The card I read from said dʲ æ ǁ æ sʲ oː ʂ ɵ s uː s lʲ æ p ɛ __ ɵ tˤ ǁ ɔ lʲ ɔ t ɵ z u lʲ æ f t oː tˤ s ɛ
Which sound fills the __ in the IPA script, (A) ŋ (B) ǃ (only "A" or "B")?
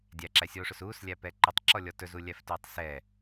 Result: B